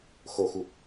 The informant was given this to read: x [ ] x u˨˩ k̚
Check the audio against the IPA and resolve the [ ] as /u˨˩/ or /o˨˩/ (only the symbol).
o˨˩